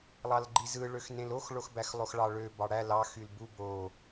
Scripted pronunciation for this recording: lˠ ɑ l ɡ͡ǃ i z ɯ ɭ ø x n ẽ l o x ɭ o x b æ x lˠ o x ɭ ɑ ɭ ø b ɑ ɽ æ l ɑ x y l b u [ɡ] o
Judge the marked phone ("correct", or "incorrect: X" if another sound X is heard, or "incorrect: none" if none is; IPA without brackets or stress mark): incorrect: b